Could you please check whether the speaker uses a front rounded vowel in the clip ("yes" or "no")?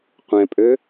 yes